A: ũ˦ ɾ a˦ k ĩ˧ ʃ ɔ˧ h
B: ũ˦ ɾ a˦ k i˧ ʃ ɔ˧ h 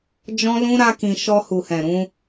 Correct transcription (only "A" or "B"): A